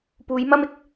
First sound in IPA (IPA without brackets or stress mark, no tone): p